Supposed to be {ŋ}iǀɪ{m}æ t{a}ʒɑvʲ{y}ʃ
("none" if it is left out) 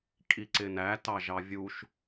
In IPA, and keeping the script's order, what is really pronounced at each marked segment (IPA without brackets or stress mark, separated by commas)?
kʼ, n, ɑ, u